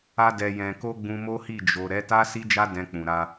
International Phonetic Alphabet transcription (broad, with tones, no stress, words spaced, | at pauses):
a˧dɛ˨ jɛ̃˨ko˧ ɡ͡bũ˧mo˦hi˦˨ d͡ʒo˨ ɾɛ˨˦ta˦ si˦d͡ʒa˦ dɛ̃˧k͡pũ˨ɾa˧